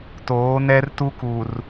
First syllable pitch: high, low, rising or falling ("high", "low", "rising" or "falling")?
rising